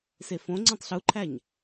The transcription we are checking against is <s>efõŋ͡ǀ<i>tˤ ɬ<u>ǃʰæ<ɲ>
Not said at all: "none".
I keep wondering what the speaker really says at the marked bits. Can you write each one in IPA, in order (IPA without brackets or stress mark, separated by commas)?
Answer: s, ĩ, u, ɲ